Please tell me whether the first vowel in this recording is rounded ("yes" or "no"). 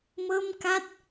no